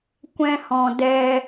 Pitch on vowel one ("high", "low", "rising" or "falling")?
high